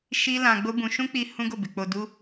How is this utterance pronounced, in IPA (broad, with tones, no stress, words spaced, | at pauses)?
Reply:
ʃi˦ lã˧ɡ͡bo˦bũ˧ ʃũ˦k͡pi˧ hũ˦ɡo˦˨be˨ k͡po˧du˦